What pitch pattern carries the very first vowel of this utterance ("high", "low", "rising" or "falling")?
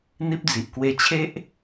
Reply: high